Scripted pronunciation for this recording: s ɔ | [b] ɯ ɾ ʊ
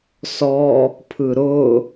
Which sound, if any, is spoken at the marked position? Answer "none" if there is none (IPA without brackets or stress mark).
pʰ